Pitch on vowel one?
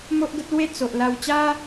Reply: high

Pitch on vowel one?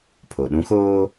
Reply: low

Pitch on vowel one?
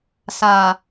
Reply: low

